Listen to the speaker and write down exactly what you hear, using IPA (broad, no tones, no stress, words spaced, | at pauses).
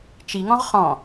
t͡ʃiŋɔ̃ʁ χɔ̃